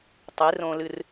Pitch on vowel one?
rising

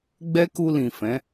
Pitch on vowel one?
high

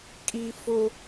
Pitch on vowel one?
high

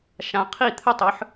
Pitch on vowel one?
rising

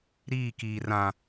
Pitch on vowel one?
falling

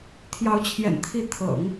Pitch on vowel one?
rising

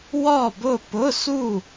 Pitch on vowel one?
falling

